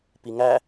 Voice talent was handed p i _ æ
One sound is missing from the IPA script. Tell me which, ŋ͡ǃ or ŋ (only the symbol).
ŋ